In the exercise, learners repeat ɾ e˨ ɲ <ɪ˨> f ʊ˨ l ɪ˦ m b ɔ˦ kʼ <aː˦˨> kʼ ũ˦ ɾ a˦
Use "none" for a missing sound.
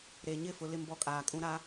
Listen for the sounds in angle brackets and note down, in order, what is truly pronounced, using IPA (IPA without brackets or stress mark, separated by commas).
ɪ˦˨, aː˨